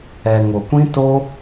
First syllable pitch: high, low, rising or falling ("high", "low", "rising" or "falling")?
low